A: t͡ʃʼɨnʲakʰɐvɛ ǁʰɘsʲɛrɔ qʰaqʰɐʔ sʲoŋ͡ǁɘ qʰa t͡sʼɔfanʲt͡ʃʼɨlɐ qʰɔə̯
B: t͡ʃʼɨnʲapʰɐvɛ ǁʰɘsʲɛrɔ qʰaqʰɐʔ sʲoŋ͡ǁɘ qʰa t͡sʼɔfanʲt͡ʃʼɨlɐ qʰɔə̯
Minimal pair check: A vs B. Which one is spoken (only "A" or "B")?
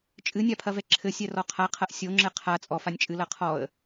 B